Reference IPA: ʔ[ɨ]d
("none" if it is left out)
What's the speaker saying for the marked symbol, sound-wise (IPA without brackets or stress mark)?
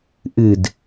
ɨ